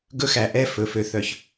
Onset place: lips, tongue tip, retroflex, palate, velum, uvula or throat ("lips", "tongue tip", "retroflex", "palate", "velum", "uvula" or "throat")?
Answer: velum